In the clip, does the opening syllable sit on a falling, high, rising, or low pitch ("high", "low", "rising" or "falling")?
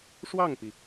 falling